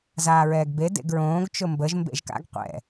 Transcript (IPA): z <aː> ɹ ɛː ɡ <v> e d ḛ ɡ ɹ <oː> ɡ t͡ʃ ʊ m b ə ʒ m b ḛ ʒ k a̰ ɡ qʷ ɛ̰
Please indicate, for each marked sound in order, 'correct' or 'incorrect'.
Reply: correct, incorrect: b, incorrect: õː

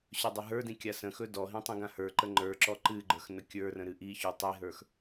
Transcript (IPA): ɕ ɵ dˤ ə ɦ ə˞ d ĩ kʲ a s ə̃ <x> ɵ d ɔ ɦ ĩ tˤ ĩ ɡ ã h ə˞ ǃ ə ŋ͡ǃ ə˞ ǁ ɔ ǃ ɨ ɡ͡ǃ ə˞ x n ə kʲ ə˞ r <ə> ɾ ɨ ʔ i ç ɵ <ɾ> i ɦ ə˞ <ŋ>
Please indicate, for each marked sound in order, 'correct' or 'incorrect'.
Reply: correct, incorrect: ə̃, incorrect: tˤ, incorrect: x

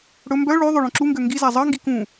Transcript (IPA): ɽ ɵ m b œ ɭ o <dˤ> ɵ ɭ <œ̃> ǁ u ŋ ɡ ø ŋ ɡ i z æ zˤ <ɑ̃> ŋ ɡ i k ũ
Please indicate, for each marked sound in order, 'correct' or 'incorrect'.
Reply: incorrect: ðˤ, correct, incorrect: ɑ

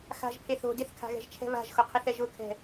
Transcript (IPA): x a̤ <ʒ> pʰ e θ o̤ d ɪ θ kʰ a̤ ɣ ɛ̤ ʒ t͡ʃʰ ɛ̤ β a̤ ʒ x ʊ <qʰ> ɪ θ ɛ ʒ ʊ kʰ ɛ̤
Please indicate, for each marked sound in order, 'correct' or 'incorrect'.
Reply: correct, correct

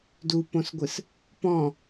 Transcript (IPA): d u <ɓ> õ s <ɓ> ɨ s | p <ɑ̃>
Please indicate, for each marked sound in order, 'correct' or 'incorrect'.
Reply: incorrect: p, incorrect: ɡʷ, incorrect: ɔ̃

